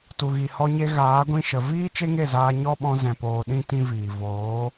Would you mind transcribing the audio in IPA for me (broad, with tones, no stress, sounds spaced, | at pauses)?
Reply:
t u˨ ɣ i˨ h ɔ˧ ɲ e˧ ɣ aː˨˦ ɡʷ ĩ˧ ʃ ə˨ v iː˦ t͡ʃ e˦ ŋ e˦˨ z aː˧ ɲ ɔ˦ ɓ ɔ̃˧ z ɛ̃˨ p oː˨ ɗ ĩ˦ t ĩ˦ v iː˨ v oː˨˦